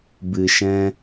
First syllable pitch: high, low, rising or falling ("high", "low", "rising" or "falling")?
low